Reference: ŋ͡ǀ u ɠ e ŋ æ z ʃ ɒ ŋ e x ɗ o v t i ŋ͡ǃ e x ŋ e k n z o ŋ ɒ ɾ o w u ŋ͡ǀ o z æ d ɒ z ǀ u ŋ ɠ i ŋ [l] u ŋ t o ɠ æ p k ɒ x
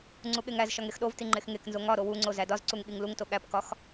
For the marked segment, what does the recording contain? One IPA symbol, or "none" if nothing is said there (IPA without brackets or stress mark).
l